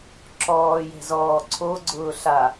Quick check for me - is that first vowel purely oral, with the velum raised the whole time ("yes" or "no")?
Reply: yes